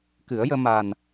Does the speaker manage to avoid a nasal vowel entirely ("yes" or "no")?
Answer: yes